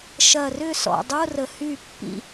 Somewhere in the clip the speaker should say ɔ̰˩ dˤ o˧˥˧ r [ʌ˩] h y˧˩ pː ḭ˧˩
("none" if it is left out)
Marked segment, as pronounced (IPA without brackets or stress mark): ə˩